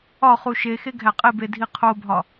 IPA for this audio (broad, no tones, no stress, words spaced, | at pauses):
ɒχu ʃexe ɡʱæqʼebe dʱiqʰobʱɒ